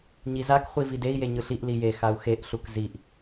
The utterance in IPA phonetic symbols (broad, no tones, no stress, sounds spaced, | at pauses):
ɲ i z a k χʷ i v i d e i̯ j e ɲ ɯ ɬ i ʔ l i j e x a u̯ x e ʔ ɬ u k z i ʔ